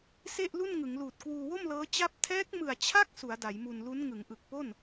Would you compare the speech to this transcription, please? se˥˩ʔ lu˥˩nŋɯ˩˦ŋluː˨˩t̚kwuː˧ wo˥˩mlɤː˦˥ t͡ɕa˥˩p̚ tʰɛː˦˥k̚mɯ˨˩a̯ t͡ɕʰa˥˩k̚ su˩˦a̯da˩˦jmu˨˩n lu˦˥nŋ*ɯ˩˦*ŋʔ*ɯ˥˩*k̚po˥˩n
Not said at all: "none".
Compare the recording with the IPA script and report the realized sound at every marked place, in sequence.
ɯ˩˦, ɯ˨˩

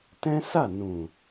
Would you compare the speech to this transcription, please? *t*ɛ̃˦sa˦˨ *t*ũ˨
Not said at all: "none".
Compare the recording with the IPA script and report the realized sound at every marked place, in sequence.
t, n

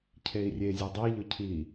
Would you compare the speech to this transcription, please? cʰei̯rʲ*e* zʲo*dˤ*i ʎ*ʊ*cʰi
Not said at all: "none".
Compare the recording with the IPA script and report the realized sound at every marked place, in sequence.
e, dˤ, ʊ

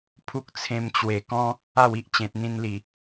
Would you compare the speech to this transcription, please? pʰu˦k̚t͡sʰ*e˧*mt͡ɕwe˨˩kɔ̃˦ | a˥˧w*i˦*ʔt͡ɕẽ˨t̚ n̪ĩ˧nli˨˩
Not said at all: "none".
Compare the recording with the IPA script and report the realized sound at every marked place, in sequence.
ẽ˧, i˦

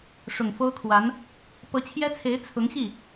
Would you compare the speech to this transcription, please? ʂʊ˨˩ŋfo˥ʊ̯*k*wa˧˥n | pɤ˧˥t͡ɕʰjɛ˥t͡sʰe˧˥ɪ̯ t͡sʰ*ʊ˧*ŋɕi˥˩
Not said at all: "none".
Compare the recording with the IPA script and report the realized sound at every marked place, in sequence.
kʰ, ʊ˧˥

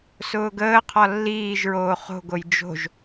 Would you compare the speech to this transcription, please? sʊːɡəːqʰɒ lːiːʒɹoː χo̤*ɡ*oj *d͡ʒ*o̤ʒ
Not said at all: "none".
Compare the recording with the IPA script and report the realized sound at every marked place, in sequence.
ɡ, d͡ʒ

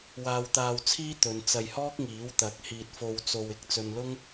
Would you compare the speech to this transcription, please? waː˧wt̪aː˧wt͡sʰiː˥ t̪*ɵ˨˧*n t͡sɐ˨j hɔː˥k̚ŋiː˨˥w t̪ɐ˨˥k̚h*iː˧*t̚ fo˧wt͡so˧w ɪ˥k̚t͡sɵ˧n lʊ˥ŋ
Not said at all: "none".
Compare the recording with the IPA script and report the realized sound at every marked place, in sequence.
ɵ˨˧, iː˧

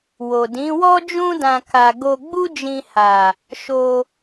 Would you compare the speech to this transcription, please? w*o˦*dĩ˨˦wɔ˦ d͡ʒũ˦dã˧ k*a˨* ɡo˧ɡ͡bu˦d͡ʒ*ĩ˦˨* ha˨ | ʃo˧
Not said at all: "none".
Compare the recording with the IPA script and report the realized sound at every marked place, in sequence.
o˨, a˨, ĩ˧

